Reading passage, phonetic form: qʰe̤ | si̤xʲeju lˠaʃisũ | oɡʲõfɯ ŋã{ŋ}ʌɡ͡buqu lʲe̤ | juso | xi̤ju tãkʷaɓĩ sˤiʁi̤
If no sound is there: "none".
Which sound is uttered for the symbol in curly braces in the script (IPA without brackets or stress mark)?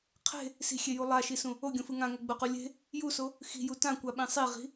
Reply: ŋ